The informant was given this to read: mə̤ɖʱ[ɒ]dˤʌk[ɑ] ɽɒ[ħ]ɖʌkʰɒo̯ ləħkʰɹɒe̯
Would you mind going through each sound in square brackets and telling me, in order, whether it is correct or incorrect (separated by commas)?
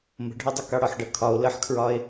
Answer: correct, correct, correct